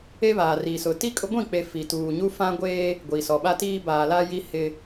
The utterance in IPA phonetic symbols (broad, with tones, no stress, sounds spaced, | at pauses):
e˦ β aː˨ r i˨ s ʊ˨ t i˦ kʼ ʊ˦ ɡʷ ĩ˦˨ k͡p e˨ f i˨ t uː˨ ɲ u˦ f ã˦ ɡʷ eː˦ | ɡʷ i˨ s ɔ˨ ɓ a˦ t iː˦ b aː˨ l a˦ j i˦ h ɪ˦